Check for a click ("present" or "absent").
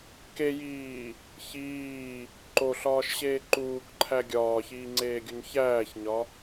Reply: present